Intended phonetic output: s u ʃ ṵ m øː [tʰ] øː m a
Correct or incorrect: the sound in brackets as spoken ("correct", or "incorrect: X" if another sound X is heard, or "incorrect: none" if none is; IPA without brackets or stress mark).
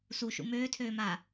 correct